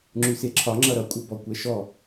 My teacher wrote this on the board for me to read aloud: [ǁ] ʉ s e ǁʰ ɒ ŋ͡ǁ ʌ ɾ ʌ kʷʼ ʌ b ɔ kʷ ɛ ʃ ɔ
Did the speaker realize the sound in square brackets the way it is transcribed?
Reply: no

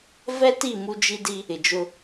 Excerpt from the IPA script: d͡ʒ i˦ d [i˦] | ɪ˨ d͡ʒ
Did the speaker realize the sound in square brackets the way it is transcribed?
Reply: yes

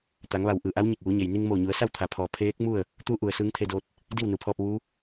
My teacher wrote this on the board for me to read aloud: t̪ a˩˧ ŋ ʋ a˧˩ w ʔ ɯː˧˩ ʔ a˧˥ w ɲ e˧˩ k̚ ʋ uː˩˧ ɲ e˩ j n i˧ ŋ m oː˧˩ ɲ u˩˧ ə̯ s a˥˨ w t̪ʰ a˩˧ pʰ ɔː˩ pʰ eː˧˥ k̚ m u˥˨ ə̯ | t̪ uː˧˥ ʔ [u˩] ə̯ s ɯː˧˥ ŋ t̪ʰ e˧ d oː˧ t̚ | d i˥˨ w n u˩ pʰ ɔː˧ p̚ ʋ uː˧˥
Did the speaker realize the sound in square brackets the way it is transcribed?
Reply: yes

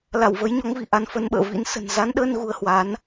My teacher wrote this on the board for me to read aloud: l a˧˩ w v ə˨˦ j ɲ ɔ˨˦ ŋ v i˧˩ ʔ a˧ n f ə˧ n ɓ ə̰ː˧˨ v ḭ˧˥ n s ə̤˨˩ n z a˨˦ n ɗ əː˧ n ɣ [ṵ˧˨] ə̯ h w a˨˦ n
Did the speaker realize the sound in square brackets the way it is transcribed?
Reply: no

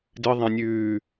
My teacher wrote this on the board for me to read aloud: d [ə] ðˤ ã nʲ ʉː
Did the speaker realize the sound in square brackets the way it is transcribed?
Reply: no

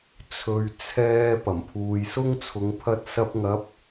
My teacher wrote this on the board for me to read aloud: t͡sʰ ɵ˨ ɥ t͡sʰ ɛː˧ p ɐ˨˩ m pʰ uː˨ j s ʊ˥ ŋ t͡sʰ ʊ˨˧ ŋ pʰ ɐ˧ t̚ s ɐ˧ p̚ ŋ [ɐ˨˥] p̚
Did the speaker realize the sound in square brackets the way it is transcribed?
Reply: yes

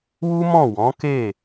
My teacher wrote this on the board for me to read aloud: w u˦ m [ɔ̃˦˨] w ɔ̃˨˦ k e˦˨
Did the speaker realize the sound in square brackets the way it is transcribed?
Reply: yes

